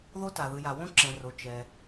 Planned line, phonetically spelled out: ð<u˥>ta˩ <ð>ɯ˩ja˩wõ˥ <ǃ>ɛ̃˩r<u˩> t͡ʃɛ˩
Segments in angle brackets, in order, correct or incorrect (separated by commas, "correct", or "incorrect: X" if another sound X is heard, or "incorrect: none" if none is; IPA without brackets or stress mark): incorrect: o˥, correct, incorrect: ǁ, incorrect: o˩